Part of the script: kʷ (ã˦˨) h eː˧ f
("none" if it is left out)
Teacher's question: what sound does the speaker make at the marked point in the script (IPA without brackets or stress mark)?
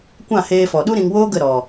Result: ã˦˨